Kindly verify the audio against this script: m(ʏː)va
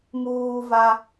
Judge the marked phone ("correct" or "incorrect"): incorrect